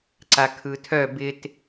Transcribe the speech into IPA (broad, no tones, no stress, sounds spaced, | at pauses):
ǀ a kʰ ɯ tʰ œ b ɪ t